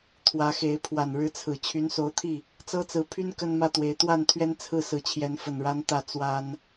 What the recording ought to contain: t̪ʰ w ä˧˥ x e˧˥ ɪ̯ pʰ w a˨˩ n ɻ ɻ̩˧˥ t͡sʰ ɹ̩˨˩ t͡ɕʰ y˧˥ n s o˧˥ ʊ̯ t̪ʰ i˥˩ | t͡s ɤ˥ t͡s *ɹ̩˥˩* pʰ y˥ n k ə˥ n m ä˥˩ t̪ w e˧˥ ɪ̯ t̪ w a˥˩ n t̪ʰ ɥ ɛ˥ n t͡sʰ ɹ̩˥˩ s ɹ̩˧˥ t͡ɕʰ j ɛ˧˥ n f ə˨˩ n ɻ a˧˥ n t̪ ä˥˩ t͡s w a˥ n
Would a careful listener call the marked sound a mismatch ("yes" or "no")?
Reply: yes